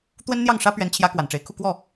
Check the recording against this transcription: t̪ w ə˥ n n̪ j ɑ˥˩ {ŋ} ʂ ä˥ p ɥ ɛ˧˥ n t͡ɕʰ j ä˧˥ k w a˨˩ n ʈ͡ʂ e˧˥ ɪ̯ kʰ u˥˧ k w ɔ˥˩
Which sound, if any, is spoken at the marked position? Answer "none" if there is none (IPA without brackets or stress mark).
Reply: ŋ